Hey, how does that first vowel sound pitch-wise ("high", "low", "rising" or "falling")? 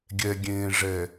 low